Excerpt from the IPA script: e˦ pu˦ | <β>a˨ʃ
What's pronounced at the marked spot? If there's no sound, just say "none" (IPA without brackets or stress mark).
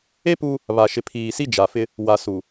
β